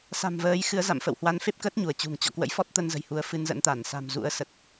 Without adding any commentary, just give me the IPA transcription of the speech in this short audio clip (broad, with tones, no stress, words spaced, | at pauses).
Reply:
sa̤˨˩mvəː˨˦jxɨ˨˦ə̯za̰˧˨m fə̰˧˨whwa˨˦nfe˦˥p̚kə˦˥t̚ ɲu˧˩ə̯t͡ɕṳ˨˩ŋt͡ɕɔ̰˧˨ kwə̰˧˥jfɔ˦˥t̚t̪ə˧nzə̤˨˩j hu˨˦ə̯fɨ˧nzə̰˧˥nt̪a˧˩n sa̤˨˩mzṵ˧˥ə̯sə˨˩t̚